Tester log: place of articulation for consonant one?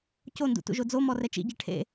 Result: palatal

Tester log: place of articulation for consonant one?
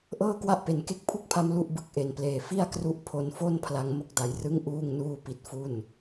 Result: glottal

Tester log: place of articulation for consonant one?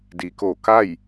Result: alveolar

